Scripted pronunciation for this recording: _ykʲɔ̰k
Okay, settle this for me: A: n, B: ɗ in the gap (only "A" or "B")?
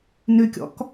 A